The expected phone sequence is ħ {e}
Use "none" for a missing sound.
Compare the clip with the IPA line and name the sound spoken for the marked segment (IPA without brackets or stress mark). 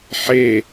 e